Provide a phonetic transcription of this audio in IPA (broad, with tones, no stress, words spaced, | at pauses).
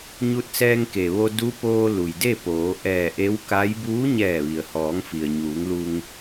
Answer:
ɲu˧t̚sɛː˧ŋke˩ʋo˧ du˧˥poː˧ lu˩jde˥˨poː˩˧ ʔɛː˧˩ ʔe˧˥wka˧˥j buː˧˥ɲɛː˧˩ʋi˩ə̯hɔː˩˧ŋ fi˩ə̯ɲuː˩˧ŋlu˧ŋ